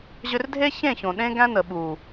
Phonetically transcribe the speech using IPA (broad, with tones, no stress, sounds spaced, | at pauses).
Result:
ʑ ʏ˧ r dʱ e˦ ç ẽ˦˨ ç õ˨ ɗ ẽ˦ ɡ æ̃˦ n ə˨ ɓ u˨